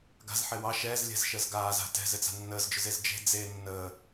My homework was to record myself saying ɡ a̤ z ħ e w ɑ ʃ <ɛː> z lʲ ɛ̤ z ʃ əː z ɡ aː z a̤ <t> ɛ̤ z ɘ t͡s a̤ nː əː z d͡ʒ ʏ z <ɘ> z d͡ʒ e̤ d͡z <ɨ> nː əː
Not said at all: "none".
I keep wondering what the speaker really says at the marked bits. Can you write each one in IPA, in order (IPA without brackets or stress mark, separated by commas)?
ɛː, t, e, e